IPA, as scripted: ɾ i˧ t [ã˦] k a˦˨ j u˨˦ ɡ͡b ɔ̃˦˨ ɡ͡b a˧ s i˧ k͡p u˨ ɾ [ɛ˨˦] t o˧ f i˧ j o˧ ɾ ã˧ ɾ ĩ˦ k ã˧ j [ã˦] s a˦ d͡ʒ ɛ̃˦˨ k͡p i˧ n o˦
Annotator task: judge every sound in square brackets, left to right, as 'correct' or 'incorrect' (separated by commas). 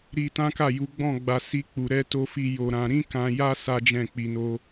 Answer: correct, correct, incorrect